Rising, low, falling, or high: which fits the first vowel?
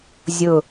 low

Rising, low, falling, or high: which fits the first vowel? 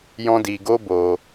high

